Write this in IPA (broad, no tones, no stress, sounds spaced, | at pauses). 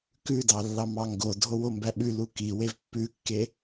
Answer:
k ʉ d ɑ lː ɑ m ɑ ŋ ɡ o dʱ o w o m b æ ɓ ʉ l u k i w e v pː ʉ kː e